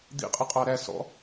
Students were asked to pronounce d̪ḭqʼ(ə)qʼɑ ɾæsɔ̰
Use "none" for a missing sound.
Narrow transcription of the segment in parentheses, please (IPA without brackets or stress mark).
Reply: ə